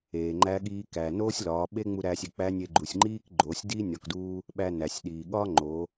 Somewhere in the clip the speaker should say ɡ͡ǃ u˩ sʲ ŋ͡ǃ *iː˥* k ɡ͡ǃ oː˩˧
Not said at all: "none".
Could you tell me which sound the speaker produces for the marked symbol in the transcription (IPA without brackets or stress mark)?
iː˥